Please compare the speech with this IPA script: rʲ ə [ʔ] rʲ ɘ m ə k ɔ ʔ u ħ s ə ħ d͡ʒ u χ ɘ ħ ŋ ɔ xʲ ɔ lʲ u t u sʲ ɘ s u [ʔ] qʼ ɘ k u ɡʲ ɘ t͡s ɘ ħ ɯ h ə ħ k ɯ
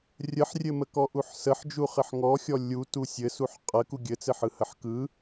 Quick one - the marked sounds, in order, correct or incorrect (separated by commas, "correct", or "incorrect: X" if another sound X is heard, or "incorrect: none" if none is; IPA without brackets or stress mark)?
incorrect: ħ, incorrect: ħ